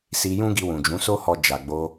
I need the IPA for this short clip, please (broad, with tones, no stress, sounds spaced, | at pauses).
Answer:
s i˧ j ũ˦ ɡ i˧ w ũ˨ d͡ʒ ũ˨˦ s o˦ h ɔ˧ d͡ʒ a˨ ɡ͡b o˧